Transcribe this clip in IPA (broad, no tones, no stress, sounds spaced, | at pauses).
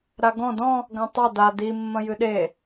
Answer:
ɾ a ɡ ɔ̃ d ɔ̃ | ɡ ã tˤ ɐ d a d i mː ɐ̃ j ɨ ɗ e